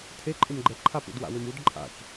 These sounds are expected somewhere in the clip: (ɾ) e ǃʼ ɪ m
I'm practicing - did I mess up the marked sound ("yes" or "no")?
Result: yes